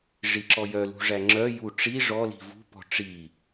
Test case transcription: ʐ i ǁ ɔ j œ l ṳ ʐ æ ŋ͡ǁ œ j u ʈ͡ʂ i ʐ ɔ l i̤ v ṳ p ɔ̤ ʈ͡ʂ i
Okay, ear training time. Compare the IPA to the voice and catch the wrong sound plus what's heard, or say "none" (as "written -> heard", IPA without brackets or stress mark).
none